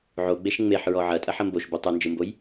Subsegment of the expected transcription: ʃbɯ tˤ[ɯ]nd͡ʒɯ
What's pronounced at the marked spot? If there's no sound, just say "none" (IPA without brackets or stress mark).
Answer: ɯ